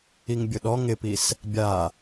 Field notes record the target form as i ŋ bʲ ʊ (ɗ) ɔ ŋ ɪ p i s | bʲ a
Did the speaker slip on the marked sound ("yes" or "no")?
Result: no